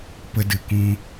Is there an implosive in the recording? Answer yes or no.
no